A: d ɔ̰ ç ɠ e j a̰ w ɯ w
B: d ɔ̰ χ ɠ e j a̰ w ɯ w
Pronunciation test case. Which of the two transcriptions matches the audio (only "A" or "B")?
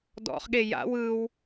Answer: B